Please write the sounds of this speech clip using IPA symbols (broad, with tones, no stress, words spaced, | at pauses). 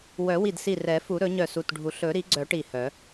wœ˨˩˦wi˧˩dsi˧˩ rɛ˨˩˦fu˨˩˦ɾɵ˨˩˦ɲœ˧˩ su˧˩tɖʱu˨˩˦ ɬɵ˨˩˦ɾi˨˩˦ɡ͡ǀœ˨˩˦ ʈi˧˩hœ˨˩˦